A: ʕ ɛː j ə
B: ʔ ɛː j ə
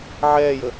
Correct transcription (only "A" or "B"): A